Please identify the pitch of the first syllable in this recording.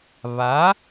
rising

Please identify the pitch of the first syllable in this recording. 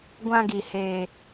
high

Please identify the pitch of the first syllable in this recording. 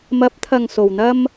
rising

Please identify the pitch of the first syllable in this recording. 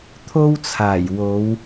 high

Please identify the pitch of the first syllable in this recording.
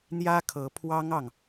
high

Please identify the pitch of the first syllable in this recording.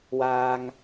low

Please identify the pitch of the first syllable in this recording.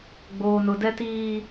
high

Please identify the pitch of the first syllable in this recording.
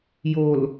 low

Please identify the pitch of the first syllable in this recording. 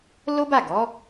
high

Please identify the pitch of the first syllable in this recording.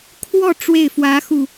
falling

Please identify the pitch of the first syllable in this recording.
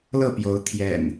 falling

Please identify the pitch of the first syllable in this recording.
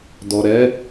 low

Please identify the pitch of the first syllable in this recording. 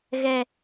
low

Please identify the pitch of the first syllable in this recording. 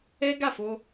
high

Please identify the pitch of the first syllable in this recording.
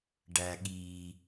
low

